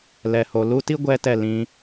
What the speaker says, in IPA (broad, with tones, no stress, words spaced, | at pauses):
lɛ˨ho˨lu˦ ti˦ ɡʷɛ˦tɛ˦˨lĩ˧